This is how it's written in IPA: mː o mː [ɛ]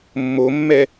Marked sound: correct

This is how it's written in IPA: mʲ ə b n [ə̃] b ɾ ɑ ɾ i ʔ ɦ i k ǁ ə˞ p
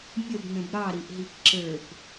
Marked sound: correct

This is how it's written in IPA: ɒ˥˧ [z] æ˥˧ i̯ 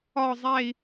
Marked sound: incorrect: zˤ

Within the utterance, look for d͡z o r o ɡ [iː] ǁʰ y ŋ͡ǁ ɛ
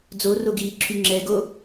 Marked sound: correct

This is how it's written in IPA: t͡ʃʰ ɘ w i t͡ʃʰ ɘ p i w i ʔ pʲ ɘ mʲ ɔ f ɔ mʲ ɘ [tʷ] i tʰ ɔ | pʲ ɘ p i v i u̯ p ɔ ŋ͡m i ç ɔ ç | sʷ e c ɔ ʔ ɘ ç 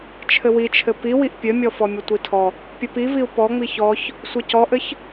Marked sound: correct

